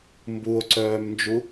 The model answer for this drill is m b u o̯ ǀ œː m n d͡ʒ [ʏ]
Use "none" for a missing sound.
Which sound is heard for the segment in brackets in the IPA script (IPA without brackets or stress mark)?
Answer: u